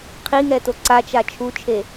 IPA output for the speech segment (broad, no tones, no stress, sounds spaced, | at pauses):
qʰ i ŋ ɛ t o ǀ a t͡ʃ a t͡ʃʰ u t͡ʃʰ e